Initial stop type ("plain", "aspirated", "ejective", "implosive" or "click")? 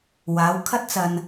aspirated